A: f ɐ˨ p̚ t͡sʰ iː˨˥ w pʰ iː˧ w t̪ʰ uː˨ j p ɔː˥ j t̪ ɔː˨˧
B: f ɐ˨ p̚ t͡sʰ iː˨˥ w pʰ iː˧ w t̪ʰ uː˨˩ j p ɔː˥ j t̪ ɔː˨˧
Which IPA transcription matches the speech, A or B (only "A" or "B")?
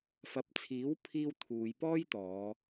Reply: A